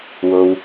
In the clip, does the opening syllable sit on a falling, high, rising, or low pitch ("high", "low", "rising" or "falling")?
low